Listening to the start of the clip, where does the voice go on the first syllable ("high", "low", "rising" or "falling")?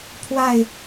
falling